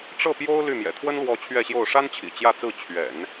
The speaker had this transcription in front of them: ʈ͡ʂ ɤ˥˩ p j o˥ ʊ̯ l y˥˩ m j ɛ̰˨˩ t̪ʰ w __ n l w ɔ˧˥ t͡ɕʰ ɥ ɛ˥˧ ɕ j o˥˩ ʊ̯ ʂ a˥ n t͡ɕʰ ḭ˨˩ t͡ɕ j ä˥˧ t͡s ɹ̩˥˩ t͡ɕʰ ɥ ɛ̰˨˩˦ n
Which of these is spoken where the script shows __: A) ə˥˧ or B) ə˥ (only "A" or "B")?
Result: B